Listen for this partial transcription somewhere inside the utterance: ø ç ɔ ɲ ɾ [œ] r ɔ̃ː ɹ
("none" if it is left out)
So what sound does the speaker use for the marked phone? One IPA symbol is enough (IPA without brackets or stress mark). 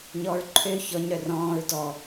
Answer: œ